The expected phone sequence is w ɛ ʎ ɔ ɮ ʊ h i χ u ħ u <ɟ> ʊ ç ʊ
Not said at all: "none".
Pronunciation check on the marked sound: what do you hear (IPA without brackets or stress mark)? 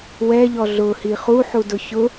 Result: d